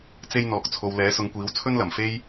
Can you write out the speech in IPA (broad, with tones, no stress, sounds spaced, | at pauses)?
t͡s e˥ j n̪ ɔː˨ k̚ t͡sʰ o˨ w l ɛː˨˥ s ʊ˨˧ ŋ kʷ iː˨˥ w t͡sʰ ɵ˥ n l ɐ˨˩ m f e˥ j